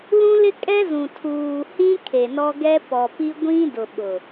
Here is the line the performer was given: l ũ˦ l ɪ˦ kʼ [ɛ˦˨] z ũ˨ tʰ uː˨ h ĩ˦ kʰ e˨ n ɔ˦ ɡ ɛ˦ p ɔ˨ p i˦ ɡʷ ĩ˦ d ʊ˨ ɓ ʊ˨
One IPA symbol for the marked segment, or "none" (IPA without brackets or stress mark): ɛ˦